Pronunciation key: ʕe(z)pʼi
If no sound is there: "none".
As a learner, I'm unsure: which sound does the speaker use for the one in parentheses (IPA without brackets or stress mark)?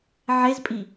z